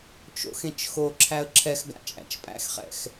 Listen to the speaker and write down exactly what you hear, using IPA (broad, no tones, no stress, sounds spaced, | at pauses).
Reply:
t͡ʃ o̰ x ẽ t͡ʃ x o ǁʰ æ ə̯ ǁʰ ɛ x ɡ a̰ t͡ʃʼ æ̰ t͡ʃ pʼ æ̰ x χ ɛ̰ x